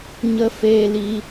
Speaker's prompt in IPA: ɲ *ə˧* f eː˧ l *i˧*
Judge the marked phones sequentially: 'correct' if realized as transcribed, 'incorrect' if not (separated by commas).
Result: correct, correct